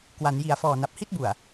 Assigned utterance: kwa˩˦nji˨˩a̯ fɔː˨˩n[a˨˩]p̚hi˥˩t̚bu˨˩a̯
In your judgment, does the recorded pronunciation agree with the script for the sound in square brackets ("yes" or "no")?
yes